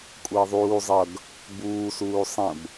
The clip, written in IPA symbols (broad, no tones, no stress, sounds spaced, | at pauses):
kʷʼ əː ðˤ uː zˤ ʌ ɡ | b uː s uː sˤ ə̃ b